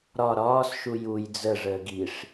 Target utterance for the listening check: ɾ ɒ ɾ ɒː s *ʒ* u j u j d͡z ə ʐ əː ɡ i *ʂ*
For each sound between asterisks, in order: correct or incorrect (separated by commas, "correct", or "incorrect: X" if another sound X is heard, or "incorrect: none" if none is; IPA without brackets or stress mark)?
incorrect: ʃ, correct